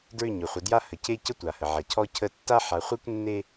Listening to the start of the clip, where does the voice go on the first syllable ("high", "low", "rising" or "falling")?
falling